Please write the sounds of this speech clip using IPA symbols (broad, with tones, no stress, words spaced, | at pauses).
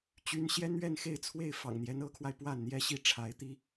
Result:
t͡ɕy˧˥n ɕjɛ˥nɥɛ˥˧nxe˥˧ɪ̯t͡sʰwe˥˩ɪ̯ fɑ̰˨˩ŋn̪jɛ˧˥n ɤ˧˥kʰwa˧ɪ̯ pwa˥˩nn̪jɛ˥ɕi˥˩ ʈ͡ʂʰa˧˥ɪ̯t̪i˥